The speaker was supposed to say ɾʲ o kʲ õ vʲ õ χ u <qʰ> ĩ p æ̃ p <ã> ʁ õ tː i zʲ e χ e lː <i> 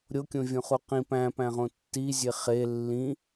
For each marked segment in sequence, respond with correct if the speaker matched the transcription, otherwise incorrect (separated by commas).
incorrect, incorrect, incorrect